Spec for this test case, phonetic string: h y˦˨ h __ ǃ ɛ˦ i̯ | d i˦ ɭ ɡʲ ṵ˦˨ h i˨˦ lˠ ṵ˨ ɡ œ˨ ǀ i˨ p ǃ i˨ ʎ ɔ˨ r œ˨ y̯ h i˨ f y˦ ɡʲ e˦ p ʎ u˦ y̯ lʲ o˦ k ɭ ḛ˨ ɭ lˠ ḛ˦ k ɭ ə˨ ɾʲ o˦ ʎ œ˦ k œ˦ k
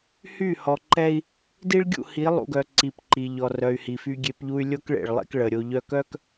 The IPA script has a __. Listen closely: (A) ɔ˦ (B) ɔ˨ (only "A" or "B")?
B